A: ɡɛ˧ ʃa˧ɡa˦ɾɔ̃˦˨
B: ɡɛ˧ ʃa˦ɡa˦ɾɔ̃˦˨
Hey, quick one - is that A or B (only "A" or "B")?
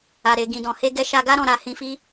A